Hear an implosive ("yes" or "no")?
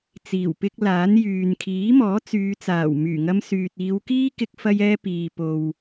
no